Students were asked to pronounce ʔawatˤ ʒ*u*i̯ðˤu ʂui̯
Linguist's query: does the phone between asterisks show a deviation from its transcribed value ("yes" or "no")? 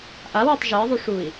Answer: yes